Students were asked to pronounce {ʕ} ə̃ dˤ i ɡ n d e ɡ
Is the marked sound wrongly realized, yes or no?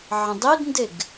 no